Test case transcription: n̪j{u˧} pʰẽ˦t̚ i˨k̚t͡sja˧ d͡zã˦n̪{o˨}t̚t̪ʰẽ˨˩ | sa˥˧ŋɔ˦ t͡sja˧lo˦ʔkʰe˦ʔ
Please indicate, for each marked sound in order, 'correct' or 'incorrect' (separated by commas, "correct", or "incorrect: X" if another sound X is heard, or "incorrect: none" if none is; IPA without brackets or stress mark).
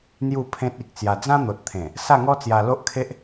incorrect: u˥˧, correct